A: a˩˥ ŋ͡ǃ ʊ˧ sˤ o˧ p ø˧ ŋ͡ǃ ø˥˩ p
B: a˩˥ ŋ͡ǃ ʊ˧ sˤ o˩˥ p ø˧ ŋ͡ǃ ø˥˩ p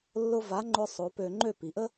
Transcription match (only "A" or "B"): B